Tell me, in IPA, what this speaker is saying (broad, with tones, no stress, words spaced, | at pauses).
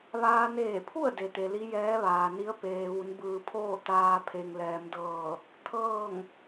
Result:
ʋaː˧neː˧˩pʰu˥˨ə̯ de˩t̪e˩li˧˥ jɛː˧˥ʋaː˩ni˧˥ə̯ peː˩ʋu˩˧nbɯː˩pʰoː˥˨ t̪aː˧ pʰe˩ŋ lɛː˩˧mdɤː˧˩ | t̪ʰɤː˥˨ŋ